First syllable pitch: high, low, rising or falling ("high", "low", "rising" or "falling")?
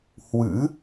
rising